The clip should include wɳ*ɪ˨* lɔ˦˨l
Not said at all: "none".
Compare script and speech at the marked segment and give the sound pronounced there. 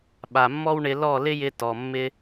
ɪ˧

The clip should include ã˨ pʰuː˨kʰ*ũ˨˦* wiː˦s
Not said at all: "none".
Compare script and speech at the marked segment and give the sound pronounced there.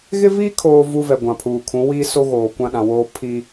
ũ˨˦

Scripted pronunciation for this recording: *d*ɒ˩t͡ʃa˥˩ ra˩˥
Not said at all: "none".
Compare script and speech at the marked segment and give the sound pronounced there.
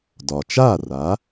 d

